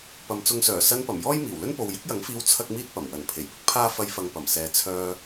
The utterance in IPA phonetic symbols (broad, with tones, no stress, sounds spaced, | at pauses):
p ɐ˨˧ m t͡s ʊ˧ ŋ s œː˨˩ s ɐ˧ n p ɐ˨˩ m j ɔː˥ j m iː˨˩ w l ɵ˥ n p o˨ w j ɪ˥ k̚ j ɐ˨˥ ŋ f iː˧ w t͡sʰ ɐ˥ k̚ m iː˥ t̚ p ɐ˨˩ m w ɐ˨˩ n pʰ e˨˩ j p ɪ˥ k̚ pʰ aː˥ f ɐ˧ j f ɐ˨ ŋ p ɐ˨˩ m s ɛː˨ t͡sʰ œː˧